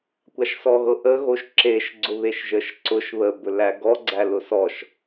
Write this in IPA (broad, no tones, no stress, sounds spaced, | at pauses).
kʷ a ʃ s ɔ ɣ ɤ ʔ ə ɣ o ʃ ǁ e ʃ ɡ͡ǀ ʊ β e ʃ ʒ ə ʃ ǀ ʊ ʃ β ə b ɵ l æ ɡ ɔ ɡ͡ǀ æ l ʊ s ɔ ʃ